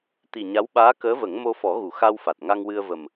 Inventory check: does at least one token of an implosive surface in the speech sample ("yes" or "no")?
yes